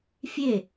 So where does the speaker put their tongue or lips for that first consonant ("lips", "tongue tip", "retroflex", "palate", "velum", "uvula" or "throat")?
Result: lips